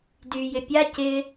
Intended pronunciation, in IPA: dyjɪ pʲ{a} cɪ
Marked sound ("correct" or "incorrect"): correct